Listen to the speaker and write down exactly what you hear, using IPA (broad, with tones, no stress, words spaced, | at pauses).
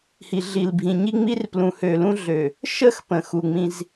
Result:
hi˨ɮi˨lbʱĩ˨ ɲi˦ŋ͡mi˦rplũ˨ hø˨lũ˦ɮø˨ | ʃə˦˨x pə̃˨xu˨ŋ͡mĩ˦z